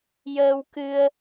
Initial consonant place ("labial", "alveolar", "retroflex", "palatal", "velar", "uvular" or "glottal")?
palatal